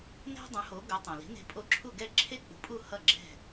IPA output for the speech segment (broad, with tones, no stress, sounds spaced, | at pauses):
n ɛ̤˥ dˤ ũ˩˥ h o˩˥ ɡ o˩˥ tˤ õ˩ l i̤˩˥ n e̤˧ pʼ o˧ ǁʰ u˥˩ ɡ ɛ˥˩ ǁʰ e˥ k͡p ṳ˩˥ pʼ u˥˩ h ʌ˥˩ ɡ͡ǁ ɛ̤˥˩